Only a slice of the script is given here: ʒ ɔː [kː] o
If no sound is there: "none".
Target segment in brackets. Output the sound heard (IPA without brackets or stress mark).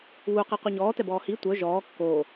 kː